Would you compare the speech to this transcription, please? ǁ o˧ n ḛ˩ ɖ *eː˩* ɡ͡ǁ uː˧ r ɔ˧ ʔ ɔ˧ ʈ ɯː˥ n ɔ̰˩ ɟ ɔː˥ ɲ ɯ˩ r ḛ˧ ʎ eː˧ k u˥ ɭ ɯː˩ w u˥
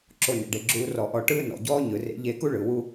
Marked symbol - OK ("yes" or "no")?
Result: no